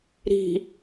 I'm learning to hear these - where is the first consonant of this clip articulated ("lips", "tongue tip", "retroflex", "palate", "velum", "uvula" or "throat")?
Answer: tongue tip